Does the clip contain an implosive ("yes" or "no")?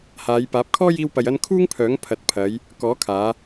no